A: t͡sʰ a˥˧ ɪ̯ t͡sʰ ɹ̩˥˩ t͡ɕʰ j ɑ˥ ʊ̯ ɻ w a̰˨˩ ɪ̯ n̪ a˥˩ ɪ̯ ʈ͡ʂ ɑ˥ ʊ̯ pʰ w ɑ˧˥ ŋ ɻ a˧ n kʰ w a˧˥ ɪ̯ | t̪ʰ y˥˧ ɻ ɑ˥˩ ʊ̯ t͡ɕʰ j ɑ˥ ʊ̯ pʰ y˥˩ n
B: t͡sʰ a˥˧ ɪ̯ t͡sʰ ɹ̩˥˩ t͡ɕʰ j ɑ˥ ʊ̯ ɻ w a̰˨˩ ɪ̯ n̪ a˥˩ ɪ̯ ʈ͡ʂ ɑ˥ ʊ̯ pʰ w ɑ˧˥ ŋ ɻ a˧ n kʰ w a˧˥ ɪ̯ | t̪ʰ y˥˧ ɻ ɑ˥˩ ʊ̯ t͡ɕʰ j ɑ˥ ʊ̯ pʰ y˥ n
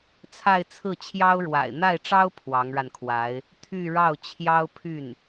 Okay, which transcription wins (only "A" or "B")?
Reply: A